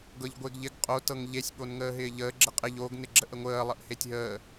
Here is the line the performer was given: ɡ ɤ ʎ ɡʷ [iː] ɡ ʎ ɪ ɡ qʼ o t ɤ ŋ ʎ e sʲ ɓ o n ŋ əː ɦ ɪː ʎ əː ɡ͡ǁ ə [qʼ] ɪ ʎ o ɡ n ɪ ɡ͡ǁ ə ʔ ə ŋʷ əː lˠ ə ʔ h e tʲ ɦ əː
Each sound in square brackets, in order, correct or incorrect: incorrect: ɪː, correct

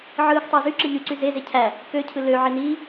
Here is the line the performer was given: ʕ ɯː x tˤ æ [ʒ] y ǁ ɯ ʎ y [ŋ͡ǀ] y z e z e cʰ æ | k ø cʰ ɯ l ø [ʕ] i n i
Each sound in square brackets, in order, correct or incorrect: incorrect: z, incorrect: ǀ, correct

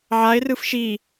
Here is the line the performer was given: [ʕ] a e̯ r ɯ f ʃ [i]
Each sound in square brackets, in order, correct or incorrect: correct, correct

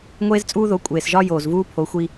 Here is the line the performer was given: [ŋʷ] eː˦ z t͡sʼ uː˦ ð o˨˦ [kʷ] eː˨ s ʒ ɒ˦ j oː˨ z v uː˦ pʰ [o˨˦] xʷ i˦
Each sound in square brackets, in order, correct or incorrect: correct, incorrect: kʷʼ, correct

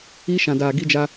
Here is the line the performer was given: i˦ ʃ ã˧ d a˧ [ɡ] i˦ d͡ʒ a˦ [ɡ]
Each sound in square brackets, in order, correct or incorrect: correct, incorrect: none

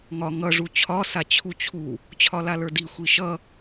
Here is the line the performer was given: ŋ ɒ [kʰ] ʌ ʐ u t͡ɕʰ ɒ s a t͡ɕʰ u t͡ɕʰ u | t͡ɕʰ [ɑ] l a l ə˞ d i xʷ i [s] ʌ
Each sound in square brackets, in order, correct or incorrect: incorrect: ŋ, incorrect: ɒ, incorrect: ʃ

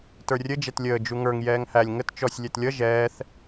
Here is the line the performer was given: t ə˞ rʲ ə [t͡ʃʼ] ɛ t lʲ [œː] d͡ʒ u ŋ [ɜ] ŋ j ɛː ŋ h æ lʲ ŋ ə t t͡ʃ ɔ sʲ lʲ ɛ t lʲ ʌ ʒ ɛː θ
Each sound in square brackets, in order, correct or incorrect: incorrect: d͡ʒ, incorrect: əː, incorrect: ə˞

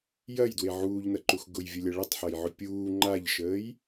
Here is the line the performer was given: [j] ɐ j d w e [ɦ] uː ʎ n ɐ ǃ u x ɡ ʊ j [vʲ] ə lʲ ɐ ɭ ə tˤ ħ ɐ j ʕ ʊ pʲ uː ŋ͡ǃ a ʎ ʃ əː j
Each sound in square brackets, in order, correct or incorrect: correct, incorrect: ʕ, correct

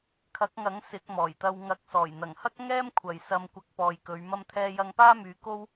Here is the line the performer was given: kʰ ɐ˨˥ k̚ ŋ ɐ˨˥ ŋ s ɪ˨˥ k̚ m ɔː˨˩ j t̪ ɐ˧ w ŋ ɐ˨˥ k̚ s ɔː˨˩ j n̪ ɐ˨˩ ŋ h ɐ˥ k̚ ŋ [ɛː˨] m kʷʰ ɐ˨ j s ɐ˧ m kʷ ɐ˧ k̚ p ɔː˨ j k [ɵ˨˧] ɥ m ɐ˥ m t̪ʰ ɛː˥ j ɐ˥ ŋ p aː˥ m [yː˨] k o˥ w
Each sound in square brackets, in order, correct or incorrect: incorrect: ɛː˥, correct, incorrect: yː˨˧

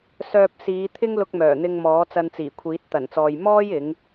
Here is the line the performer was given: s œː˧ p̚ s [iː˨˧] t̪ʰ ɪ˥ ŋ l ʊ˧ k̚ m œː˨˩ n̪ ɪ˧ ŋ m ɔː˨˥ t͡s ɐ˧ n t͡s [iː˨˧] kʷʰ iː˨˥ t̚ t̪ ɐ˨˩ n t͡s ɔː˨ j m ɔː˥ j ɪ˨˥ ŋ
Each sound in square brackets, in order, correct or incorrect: correct, incorrect: iː˨˩

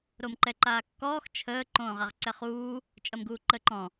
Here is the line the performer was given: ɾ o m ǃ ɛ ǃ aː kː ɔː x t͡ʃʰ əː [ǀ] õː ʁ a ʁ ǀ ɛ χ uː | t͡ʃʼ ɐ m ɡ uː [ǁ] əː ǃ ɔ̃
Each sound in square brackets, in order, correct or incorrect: incorrect: ǃ, incorrect: ǃ

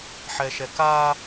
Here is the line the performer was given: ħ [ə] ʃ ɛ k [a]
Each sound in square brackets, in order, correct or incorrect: incorrect: ɛ, correct

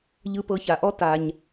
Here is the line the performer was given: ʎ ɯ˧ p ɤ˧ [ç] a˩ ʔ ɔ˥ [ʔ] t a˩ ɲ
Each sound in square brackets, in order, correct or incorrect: correct, incorrect: none

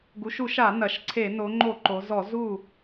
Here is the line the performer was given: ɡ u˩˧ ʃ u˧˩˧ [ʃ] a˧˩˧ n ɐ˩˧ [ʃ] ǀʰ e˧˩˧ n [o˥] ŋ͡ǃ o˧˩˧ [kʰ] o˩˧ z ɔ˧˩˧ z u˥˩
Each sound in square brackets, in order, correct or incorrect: correct, correct, incorrect: o˩˧, incorrect: ǃ

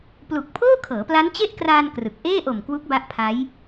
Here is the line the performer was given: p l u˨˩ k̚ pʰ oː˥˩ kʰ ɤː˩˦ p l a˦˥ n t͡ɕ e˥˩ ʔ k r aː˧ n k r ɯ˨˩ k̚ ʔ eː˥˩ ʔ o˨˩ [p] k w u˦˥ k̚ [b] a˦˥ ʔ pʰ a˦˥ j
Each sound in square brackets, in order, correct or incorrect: incorrect: m, correct

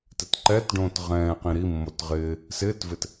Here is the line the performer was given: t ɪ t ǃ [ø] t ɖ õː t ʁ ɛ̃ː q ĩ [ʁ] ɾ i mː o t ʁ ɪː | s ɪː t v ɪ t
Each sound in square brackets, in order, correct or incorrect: incorrect: ɛ, incorrect: none

